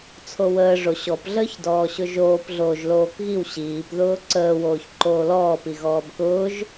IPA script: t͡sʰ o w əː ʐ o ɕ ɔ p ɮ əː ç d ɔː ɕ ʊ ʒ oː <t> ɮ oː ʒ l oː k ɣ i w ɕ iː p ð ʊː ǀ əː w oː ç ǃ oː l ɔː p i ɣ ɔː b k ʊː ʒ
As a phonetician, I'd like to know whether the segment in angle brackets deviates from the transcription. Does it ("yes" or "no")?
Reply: yes